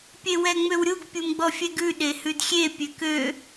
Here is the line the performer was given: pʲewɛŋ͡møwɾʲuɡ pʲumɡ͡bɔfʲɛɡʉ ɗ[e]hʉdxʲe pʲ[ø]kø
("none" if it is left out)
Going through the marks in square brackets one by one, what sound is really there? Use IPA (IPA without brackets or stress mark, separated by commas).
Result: e, ø